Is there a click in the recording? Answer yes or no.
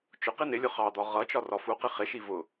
no